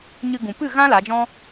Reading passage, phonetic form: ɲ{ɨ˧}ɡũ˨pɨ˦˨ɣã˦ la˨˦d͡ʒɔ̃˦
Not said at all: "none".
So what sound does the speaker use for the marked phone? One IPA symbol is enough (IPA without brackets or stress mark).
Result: ɨ˧